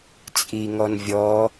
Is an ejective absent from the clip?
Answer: no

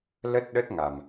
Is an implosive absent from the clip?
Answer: no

